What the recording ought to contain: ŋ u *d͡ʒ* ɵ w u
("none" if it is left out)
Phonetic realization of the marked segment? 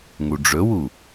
ɖ͡ʐ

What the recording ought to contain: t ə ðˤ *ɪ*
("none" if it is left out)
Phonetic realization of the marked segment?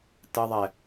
ɛ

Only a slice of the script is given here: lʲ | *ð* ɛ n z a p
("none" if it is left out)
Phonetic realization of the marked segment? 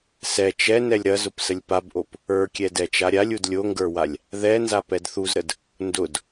ð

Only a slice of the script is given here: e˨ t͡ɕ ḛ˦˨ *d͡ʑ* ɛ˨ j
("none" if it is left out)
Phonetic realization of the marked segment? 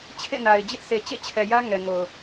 t͡ɕʰ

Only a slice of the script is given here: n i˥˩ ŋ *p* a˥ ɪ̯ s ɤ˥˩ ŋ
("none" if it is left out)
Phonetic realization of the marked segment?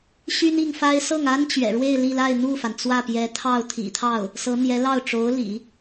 f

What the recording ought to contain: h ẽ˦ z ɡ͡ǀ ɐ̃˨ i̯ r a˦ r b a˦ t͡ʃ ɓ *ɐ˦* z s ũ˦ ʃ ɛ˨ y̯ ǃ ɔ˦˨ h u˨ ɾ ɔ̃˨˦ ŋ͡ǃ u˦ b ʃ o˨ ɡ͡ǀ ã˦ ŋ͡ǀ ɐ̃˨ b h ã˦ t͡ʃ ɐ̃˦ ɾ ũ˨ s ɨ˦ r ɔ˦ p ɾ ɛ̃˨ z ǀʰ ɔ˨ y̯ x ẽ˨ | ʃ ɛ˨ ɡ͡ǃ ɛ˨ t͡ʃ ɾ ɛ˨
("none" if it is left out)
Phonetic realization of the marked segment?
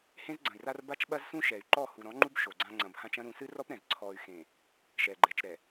ɐ˦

